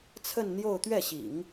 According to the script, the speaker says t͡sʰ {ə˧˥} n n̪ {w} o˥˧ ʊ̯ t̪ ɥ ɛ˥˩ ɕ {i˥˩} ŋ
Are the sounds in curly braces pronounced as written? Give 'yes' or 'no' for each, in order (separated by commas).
no, no, no